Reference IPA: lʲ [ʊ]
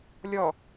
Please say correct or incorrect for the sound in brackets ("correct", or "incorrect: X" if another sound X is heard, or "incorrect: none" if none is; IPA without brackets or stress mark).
incorrect: ɔ